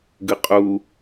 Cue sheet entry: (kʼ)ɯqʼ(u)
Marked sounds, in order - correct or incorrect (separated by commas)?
incorrect, correct